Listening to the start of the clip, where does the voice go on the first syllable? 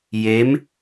rising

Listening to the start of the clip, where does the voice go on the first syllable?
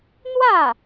falling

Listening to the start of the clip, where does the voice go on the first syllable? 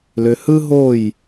low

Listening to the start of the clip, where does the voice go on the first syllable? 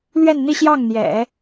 falling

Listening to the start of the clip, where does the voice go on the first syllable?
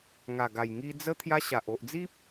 low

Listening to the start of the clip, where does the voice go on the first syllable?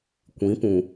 rising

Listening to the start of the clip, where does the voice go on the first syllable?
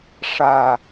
low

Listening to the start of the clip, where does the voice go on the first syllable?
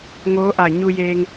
rising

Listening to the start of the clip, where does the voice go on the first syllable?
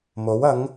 rising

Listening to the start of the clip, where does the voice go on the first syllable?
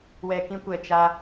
low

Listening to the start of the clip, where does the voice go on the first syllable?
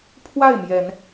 falling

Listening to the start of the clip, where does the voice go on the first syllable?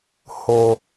low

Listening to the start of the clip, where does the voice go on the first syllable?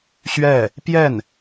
falling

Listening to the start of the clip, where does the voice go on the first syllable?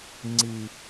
low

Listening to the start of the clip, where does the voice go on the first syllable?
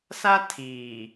high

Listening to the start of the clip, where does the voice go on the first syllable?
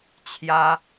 high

